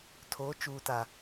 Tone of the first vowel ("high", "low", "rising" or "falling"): rising